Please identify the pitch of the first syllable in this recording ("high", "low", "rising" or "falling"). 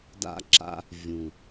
high